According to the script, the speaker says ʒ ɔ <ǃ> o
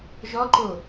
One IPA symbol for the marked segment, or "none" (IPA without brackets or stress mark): ǃ